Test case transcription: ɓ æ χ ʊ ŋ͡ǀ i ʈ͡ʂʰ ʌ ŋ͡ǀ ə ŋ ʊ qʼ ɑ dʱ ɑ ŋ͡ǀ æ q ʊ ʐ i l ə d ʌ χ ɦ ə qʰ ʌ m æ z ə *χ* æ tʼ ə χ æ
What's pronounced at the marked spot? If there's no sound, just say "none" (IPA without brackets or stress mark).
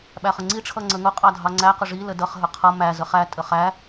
χ